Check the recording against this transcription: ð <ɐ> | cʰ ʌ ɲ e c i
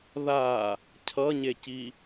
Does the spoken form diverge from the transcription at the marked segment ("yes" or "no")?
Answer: yes